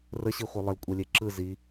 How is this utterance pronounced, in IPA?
r ə ɕ i χʷ ɯ lˠ ə l kʷʼ ɛ lʲ e ǁ ɯ z i

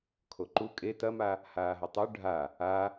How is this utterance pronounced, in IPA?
kʰ o ǃ u kʼ e t ɐ m a | h aː ɦ ɐ tˤ ʉ ɖʱ a | a

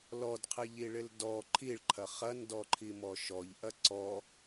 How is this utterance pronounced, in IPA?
l ɔ d qʰ ɪ ʎ i ɭ ɪ l d ɔ ǃʰ i ɭ ǃʰ ɐ χ ɐ n d ɔ ǃʰ i m ɔ ʃ ɔ ʎ ʔ ɐ ǀ ɔ

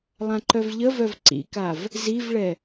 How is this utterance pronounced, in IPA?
lˠ ã ǃ œ v ʎ ə v œ v ǀ ḭ k a v | z i v ɭ ɛ

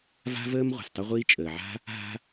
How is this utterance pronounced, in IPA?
v a̤˥ v əː˥ m ʁʷ ɛ̤˩ s tˤ ə˥ ʁʷ iː˥ t͡ʃʼ əː˩ ʕ a̤˥ | ɦ a̤˥

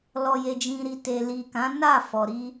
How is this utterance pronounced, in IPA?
l ɔ˨ j e˨ d͡ʒ ĩ˨ ɾ i˨ t e˨ l i˨ k ã˨˦ n a˦˨ f ɔ˨ ɾ i˧

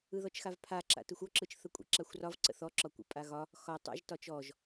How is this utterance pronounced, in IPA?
ɯ ð ɔ t͡ʃ x a v pʰ a ǁ a̰ t ɯ xʷ ɔ ǁ ɯ t͡ʃ θ ə kʷʼ ə̰ ǁ a xʷ r ɒ v ǀ ə̰ θ ɔ ǁ ɒ kʷ ə̰ pʼ a ɣ ɒ | x ɒ tˤ a̰ ʒ t ɒ t͡ʃ ɔ ʒ

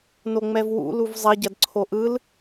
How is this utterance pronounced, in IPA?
n o ŋ͡m ɛ v w ṵ l u v zˤ ɐ ɟ ɐ d ǀʰ o ʔ ɯ l

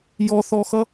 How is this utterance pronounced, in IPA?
j ɔ θ ɔ x ʌ

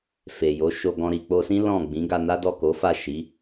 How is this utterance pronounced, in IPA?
f e˨ j o˨˦ ʃ o˧ ɡ ɔ̃˧ ɾ i˨ k͡p o˧ s ĩ˦ l ɔ̃˦˨ ɡ͡b ĩ˨˦ ɡ a˧ n a˦ d ɔ˦˨ k o˨˦ f a˦˨ ʃ i˨˦

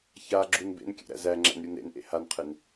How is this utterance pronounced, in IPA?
ç a ɡ͡ǁ u n b ḛ n kʲ ɛ̰ ɾ æ̰ z æ ŋ͡ǁ æ̰ n ɾʲ u n ɾ ḛ n ʔ ḛ h a n qʰ e n

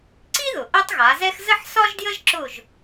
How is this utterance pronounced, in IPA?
ǀ i˥ ð ʊ˩ ʔ ɜ˥ tˤ ɣ a˩˧ z ɛ˥ x z ə˥ ħ s ɒ˥ ʒ d j ə˥ ʒ ǁ ʊ˥˨ ʒ

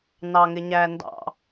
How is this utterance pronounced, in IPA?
n ɑ ŋ ɪ ɲ æ n d ɑ̰

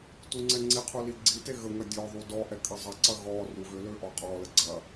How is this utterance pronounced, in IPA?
t u ŋ͡ǀ ɛ ŋ͡ǀ i qʰ u l i ɡ͡ǀ i t e ɣ ə ŋ ɐ dʲ ɔ ðˤ u d ɔ ʔ ɛ kʼ ɐ zˤ ɐ ǀ ɐ ɣ ɔ r u ɣ ʏ l ø ʔ ɔ qʼ ɔ l ə ɡ͡ǀ ɐ

